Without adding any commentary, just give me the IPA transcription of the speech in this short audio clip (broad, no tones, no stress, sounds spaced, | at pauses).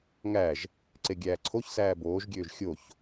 ŋ æ ʒ | ǀ e ɡʲ æː ǀʰ o ç s æː b oː ʒ ɡʲ øː ʒ xʲ o ç